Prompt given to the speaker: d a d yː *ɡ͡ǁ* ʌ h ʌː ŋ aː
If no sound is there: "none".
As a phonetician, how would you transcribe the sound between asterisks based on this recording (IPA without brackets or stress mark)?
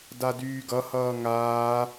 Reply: ɡ